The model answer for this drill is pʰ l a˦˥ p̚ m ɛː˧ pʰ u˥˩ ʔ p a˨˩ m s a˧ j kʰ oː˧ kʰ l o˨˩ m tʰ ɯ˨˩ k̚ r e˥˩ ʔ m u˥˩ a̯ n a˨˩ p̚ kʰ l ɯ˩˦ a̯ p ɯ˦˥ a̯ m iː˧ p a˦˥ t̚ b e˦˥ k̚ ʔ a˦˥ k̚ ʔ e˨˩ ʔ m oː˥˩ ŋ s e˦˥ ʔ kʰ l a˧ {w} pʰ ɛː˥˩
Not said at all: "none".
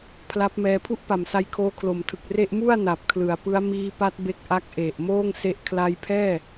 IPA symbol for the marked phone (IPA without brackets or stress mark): j